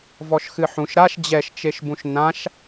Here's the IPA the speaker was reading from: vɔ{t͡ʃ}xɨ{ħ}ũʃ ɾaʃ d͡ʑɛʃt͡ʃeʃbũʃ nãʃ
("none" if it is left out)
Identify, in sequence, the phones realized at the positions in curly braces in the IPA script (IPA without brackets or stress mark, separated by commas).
ʃ, ħ